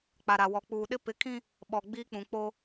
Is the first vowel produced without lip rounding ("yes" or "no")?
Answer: yes